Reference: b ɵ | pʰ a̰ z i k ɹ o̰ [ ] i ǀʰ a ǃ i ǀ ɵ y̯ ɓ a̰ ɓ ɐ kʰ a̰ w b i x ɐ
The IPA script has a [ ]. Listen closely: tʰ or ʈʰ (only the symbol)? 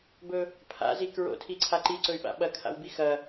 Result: tʰ